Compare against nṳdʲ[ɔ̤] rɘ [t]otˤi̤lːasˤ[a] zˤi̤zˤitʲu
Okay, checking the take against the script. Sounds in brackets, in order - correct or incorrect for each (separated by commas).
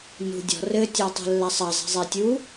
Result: correct, incorrect, incorrect